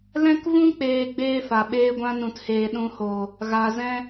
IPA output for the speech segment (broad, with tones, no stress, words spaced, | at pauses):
lɛ̃˦k vũ˦k͡peː˨ ɡ͡beː˦fa˨ɓeː˦ɡʷã˦ nũ˨theː˨ɗũ˧hoː˨ | ɣa˧zɛ̃˦